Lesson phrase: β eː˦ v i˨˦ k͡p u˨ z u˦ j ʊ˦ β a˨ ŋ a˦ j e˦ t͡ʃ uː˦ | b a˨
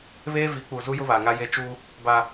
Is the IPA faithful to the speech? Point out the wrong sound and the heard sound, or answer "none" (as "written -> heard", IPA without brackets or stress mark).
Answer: none